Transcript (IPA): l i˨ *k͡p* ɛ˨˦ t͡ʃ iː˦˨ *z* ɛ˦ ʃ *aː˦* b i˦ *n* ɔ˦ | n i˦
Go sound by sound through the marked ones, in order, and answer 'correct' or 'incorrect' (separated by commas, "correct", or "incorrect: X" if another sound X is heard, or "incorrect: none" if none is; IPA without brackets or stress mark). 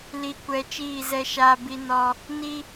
incorrect: kʷ, correct, correct, correct